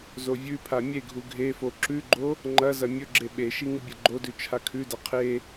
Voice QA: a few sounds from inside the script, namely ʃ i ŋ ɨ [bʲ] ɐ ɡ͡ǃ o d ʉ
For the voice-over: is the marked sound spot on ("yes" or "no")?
yes